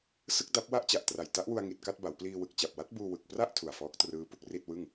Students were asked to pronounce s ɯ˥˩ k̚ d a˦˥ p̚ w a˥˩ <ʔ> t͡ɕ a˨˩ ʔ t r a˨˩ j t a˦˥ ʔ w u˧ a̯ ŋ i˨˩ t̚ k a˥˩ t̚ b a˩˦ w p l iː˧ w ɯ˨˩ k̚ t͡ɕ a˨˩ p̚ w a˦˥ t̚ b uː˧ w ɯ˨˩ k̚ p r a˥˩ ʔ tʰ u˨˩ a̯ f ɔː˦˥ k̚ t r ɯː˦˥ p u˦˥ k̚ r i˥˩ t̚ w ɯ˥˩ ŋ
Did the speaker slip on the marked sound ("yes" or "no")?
no